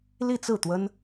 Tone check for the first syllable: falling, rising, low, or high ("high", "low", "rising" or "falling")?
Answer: falling